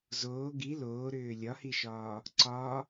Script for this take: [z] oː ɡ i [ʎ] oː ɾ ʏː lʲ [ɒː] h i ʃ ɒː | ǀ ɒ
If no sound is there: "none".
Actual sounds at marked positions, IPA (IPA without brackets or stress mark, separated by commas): z, l, ɒ